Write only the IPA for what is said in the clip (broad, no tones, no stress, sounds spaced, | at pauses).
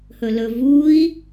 h ɵ l ɵ v u i̯